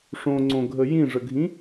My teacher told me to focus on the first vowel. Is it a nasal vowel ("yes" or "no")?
yes